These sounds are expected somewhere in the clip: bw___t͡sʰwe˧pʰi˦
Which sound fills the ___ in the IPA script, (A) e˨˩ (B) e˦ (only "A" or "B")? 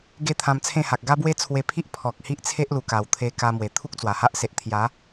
B